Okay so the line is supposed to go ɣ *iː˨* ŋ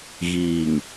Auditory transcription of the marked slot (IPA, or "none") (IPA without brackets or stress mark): iː˨